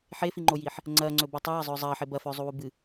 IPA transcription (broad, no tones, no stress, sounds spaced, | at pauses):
ħ e f i ŋ͡ǃ o j iː ħ | ŋ͡ǀ ɐː ŋ͡ǀ ɵ b ɨ tˤ ɵ j ɐ zˤ ɵː zˤ ɐː ħ e b ɐ f ɵː zˤ u w u b ɨ